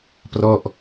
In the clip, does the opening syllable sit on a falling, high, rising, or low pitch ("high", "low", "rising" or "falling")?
falling